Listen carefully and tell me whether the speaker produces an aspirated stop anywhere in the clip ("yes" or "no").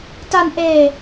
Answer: no